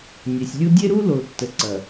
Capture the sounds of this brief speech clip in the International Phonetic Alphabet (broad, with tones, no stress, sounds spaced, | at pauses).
nʲ e˨ sʲ lʲ u˦ dʲ e˦ ɾ u˦ l o˨ tː ə˨ ǀ ɐ˨